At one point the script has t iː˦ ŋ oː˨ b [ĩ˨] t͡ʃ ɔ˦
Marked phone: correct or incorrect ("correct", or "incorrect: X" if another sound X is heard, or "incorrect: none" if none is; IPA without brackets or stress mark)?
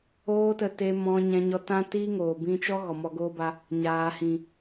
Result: incorrect: ĩ˧